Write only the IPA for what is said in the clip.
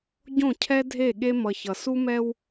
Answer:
ɟõ˦˨cʰɛ˦dʱe˦˨ɠe˦ mʌ˨çʌ˨su˦mɛ˦w

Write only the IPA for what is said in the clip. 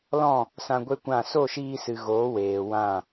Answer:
lɔ̃˦˨ | sã˧ɡʷe˦kʷã˦˨ so˦˨ʃiː˧sɨ˨ ɣoː˨˦ weː˨wã˦˨

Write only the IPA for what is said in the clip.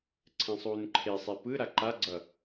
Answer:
ǀʰɛ̃sˤuːnǃʰesˤe pɯ ɾaǃaɡ͡ǀʌ

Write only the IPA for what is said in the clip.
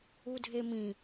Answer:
udʱemĩ

